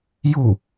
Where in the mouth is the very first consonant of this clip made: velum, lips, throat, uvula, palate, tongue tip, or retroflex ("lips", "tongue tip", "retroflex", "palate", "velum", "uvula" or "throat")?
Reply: palate